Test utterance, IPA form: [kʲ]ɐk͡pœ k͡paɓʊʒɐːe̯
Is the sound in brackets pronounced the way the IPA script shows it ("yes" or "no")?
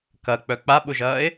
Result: no